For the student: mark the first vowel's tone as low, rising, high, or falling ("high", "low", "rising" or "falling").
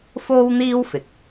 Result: high